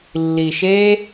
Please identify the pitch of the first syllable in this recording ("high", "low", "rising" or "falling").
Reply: low